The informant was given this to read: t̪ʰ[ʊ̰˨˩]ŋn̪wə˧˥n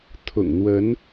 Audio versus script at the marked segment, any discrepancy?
no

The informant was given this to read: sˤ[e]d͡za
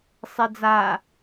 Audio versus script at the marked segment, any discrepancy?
no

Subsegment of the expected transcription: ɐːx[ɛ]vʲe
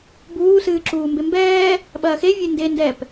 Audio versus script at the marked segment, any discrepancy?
yes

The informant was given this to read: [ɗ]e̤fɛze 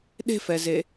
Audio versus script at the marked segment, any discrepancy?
no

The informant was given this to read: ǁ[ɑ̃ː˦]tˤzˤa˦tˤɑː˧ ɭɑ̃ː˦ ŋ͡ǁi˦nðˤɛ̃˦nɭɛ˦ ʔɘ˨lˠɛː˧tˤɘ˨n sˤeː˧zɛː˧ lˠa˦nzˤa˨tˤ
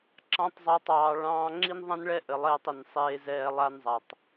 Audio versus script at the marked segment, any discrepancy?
yes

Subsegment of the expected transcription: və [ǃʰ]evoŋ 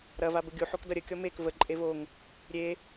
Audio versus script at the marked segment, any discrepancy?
yes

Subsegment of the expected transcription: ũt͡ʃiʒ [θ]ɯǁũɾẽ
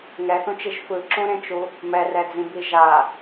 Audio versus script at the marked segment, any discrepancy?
yes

